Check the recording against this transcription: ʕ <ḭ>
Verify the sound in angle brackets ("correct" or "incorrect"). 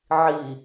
incorrect